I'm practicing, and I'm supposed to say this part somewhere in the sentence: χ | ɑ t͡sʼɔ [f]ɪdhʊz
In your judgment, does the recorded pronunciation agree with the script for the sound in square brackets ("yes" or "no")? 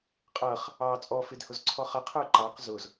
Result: yes